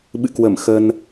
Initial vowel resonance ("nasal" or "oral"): oral